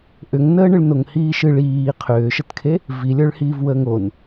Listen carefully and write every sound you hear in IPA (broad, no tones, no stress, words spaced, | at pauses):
ʔʏŋnəːɳɨɭ noŋhiːʃɨɭ iː qʰʏːʃətkʰe | vilʲə˞ɭ hiːvwəːŋon